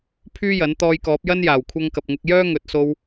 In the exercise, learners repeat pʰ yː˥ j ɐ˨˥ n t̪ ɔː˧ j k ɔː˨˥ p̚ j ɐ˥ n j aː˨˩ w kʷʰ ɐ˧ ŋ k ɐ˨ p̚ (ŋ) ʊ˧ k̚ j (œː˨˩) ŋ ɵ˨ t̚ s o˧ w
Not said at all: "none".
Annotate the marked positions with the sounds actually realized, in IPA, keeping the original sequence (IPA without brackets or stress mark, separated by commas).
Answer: ŋ, œː˥